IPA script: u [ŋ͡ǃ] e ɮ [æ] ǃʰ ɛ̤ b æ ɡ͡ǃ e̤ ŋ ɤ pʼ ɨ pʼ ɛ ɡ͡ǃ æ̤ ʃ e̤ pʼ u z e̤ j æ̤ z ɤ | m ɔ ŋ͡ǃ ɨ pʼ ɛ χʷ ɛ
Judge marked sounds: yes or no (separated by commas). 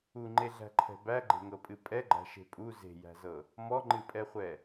yes, no